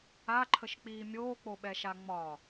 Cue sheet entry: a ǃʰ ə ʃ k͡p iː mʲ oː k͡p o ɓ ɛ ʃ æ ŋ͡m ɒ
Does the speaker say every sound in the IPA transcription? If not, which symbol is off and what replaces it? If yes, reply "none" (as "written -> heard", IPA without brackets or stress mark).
æ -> a